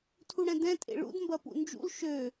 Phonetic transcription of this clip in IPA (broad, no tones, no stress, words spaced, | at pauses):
tʰuɽɛ̃dɛ̃ tʼḛɭṵd mbɐpṵnd͡ʒṵl ʃø